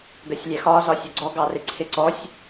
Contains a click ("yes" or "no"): yes